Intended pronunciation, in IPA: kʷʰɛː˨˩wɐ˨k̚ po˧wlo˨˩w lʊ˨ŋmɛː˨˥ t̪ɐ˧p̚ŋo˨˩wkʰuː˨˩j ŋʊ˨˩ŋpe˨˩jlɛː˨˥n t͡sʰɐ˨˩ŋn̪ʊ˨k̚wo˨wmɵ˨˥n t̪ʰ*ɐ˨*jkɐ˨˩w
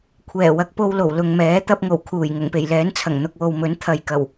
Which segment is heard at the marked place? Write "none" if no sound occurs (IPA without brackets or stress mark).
ɐ˨